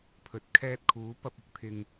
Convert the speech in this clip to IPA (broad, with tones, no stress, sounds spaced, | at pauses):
pʰ ɵ˨ t̚ kʰ ɛː˧ t̚ kʰ uː˨˥ p ɐ˧ p̚ ʊ˨˥ k̚ t̪ʰ ɪ˧ ŋ